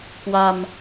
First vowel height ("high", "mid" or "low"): low